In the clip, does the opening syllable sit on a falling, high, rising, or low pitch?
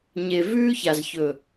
low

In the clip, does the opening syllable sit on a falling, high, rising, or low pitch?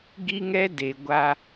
high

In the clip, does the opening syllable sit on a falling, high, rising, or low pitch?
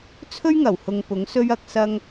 high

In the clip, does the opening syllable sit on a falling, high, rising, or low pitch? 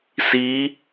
rising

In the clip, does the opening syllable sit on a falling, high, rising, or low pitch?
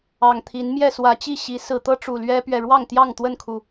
low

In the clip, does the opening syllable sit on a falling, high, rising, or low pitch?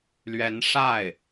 rising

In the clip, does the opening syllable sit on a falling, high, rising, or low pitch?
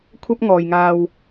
high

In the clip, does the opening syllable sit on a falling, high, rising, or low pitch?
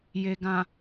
low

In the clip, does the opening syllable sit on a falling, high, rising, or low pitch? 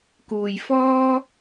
low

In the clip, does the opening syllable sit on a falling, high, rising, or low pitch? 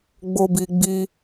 high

